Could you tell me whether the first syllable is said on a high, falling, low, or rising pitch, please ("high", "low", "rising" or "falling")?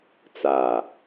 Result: low